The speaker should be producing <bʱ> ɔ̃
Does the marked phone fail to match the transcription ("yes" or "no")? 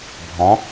no